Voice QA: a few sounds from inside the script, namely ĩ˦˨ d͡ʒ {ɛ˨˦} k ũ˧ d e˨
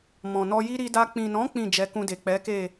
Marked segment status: correct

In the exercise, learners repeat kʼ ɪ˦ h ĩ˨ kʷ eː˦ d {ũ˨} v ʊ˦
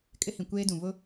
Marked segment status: correct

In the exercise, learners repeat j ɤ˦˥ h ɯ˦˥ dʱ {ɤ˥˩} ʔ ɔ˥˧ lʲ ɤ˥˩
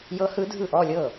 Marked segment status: incorrect: ɯ˥˩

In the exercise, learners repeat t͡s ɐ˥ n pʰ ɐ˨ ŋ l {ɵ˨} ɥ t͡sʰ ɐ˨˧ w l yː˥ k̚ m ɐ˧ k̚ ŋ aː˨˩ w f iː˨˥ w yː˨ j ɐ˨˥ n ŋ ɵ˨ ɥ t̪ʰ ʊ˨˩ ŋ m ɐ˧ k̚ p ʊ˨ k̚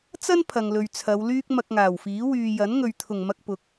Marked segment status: correct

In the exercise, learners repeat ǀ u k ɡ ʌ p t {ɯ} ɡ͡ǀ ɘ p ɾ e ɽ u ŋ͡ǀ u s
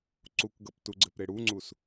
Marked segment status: incorrect: u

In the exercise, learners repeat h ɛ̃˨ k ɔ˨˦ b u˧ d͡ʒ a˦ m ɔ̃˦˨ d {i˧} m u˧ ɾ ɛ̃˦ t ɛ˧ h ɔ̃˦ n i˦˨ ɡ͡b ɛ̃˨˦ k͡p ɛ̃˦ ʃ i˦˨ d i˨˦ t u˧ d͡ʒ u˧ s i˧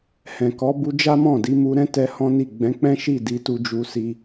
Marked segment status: incorrect: i˨˦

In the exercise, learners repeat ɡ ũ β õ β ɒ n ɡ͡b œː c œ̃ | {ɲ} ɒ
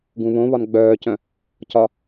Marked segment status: incorrect: c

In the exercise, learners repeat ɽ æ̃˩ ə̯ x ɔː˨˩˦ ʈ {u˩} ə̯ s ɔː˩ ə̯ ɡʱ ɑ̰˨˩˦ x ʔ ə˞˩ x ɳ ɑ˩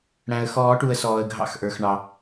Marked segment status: correct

